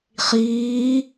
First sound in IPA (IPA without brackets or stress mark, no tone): χ